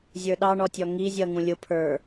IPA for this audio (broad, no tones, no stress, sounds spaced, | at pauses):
zʲ ə˞ ɗ ɑ ɳ ɔ tʲ ɔ ŋ i zʲ ʌ ŋ ũ lʲ ʊ pʰ ə˞